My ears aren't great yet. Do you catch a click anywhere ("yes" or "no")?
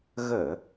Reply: no